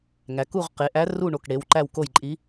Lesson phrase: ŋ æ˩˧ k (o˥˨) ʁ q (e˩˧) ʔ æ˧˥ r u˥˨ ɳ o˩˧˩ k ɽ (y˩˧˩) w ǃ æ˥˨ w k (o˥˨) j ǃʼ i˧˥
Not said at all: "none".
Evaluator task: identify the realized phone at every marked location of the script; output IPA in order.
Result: u˥˨, e˩˧, e˩˧˩, o˥˨

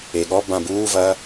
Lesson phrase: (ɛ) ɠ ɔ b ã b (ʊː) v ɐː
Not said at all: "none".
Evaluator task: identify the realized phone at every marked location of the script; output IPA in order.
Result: e, uː

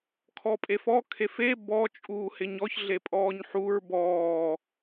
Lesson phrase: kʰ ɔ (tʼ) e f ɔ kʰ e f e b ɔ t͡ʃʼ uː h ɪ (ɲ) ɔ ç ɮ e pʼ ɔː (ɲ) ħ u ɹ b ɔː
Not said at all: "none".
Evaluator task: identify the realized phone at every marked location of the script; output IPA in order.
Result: pʼ, ɲ, ɲ

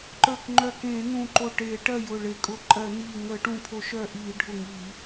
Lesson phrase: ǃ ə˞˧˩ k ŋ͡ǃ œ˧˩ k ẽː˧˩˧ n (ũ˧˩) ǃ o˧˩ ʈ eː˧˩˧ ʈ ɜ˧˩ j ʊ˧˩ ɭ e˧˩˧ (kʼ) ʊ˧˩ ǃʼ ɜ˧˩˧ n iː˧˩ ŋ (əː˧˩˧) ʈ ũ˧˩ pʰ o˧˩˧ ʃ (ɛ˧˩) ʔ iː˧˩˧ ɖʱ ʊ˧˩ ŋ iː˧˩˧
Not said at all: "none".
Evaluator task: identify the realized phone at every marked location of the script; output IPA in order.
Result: ũ˧˩, kʼ, əː˧˩˧, œ˧˩

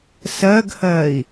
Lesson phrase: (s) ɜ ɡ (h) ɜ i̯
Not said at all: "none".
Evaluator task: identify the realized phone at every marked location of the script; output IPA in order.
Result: s, h

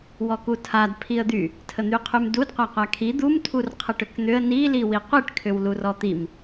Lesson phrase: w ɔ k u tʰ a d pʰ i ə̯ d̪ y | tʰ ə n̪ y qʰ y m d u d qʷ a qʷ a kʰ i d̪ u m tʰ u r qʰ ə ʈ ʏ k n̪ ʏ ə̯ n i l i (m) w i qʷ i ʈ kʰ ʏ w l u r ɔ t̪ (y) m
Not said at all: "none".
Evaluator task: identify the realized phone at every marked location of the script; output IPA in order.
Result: none, i

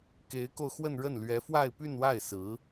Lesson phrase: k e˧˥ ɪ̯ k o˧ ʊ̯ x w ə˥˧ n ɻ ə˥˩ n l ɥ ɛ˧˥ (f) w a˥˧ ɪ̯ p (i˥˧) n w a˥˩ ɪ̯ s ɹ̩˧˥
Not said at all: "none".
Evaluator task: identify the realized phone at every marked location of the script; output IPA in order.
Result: f, y˥˧

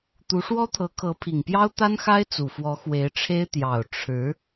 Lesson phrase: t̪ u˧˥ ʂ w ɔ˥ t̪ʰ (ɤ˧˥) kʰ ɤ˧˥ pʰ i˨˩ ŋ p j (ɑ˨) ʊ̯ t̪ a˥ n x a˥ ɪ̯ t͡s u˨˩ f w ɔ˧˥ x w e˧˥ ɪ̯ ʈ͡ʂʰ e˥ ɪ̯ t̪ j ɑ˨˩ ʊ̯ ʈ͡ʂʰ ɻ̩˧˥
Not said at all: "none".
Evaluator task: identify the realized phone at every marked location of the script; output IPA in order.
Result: ɤ˧˥, ɑ˥

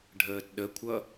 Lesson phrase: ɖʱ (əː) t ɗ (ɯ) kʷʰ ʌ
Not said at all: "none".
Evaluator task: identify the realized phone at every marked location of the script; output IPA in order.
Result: əː, ə

